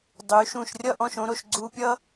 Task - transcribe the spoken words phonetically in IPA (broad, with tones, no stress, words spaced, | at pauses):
dˤy˩˧ʃũ˧˩ʃrʲʌ˥˧ʔ ɔ̃˧ʃõ˥ɾo˧ʃ ɡ͡ǀu˧pʲʌ˥